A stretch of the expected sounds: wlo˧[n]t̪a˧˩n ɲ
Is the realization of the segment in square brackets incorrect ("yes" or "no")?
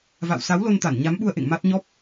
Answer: no